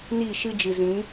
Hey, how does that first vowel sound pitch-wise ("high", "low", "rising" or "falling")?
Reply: falling